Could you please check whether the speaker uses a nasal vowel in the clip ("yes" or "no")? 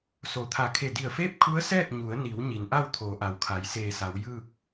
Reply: no